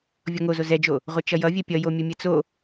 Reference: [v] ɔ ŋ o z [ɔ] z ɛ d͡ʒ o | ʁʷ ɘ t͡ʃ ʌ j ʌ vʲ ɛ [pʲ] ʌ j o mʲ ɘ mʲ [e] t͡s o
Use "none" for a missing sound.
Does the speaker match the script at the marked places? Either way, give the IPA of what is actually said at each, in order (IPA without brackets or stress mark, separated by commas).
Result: vʲ, o, pʲ, ɘ